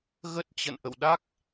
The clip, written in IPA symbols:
ɣə˦˥t̚t͡ɕə̰˧˨n ʔə̰˧˨wɗa˦˥k̚

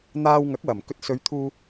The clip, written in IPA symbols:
n̪aː˧wŋɐ˨˥k̚wɐ˨˩mkɵ˧t̚ sɵ˨˧ɥt̪ʰuː˧

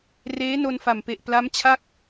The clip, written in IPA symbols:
reː˦˥no˧nfa˨˩mpe˨˩ʔ pla˦˥mt͡ɕʰa˥˩k̚

